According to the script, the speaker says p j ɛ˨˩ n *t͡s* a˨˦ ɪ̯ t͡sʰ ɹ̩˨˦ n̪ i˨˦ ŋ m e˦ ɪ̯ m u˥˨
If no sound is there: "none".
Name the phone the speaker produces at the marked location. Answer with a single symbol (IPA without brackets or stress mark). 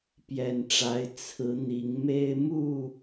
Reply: ʈ͡ʂ